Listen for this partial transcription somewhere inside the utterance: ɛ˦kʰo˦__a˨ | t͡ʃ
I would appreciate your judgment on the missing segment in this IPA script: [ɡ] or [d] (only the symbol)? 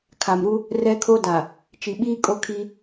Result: d